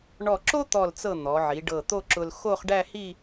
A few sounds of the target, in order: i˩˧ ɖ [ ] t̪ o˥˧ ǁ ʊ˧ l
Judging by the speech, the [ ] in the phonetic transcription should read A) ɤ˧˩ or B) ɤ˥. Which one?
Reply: A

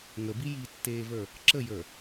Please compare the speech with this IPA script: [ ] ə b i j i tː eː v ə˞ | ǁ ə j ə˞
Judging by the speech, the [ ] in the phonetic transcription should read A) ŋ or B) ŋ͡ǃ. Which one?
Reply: A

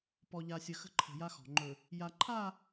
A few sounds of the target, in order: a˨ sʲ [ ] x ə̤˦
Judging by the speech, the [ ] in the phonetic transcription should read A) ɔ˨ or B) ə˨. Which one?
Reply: B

